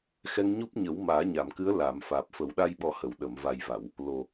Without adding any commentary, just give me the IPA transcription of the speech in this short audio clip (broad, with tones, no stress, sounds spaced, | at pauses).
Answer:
x ɛ˧ ŋ ɲ u˦˥ p̚ ɲ ə˨˩˦ w m aː˨˩˦ ɲ a˨˩˨ m k ɨ˧˥ ə̯ l a˨˩˨ m f aː˨˩ p̚ f ə˨˩˦ w ɗ a˧ j ɓ ɔ˨˩˦ h ə˨˩˨ w ɗ ə˨˩˨ m v a˨˩ j v a˨˩˨ w | l o˨˩